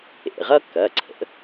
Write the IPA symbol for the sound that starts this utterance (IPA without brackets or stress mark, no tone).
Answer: ḛ